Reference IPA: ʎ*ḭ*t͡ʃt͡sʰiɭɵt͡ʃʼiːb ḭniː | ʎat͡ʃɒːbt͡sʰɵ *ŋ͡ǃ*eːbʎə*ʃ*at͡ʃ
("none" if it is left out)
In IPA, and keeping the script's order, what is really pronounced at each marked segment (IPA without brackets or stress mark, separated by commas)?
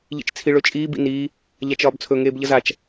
ḭ, ŋ, z